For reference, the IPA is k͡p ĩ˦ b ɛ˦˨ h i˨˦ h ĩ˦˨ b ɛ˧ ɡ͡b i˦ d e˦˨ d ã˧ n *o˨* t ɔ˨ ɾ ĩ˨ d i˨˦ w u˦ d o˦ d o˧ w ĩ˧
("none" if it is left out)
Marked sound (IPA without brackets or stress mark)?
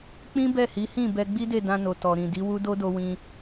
o˨